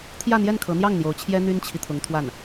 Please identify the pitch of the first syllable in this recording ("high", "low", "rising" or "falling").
falling